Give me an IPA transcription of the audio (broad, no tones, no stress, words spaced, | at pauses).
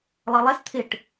lˠʌlˠæs t̪ʰɪʈ